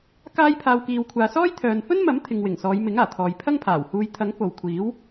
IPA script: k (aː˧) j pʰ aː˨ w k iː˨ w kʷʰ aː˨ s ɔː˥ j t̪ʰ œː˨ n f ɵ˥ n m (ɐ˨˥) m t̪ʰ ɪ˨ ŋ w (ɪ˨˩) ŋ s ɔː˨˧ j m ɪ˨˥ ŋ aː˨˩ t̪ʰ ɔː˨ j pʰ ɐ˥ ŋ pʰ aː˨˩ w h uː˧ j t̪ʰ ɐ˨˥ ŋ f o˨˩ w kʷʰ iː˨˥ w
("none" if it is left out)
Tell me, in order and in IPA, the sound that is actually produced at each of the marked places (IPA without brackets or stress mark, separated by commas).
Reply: aː˧, ɐ˨˥, ɪ˨˩